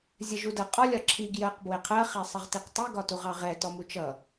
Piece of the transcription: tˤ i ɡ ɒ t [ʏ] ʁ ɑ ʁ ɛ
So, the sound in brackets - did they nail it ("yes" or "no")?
no